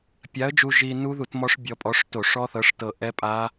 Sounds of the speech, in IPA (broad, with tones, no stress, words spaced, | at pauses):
pʲa˨˥ə̯d͡ʒu˧ ʒi˧ nu˦˥ðu˧˩˧t mɔ˦˥ʂbʲɔ˧pʼɔ˨˥ʂto˧˩˧ ʂɔ˦˥θɤ˨˥ʂtɤ˧˩ ʔɛ˦˥ pʼa˦˥